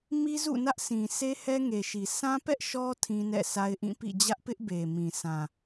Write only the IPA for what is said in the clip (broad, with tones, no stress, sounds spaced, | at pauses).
m i˦ z ṵ˦˨ n ä˦ ʔ s ĩ˨ sʰ e˦ h ɛ˦ ŋ e˨ ʃ i˨ sʰ ã˦ p ɛ˦ ʔ ʃ ɔ˦ tʰ ĩ˦ n ɛ̰˦˨ s a˦ ɪ̯ ʔ ĩ˦˨ p ḭ˦˨ d͡ʑ ä˦ ʔ p ɪ˦ ʔ b e˨ m ĩ˨ sʰ ã˨